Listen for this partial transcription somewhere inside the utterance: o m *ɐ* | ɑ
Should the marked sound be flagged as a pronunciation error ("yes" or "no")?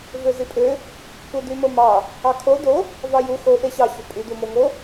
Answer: yes